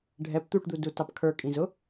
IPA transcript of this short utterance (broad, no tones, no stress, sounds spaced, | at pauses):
ɖʱ ɛ p t̪ u ʈ d̪ u d u t ɑ p kʰ ə˞ kʼ ĩ z ʊ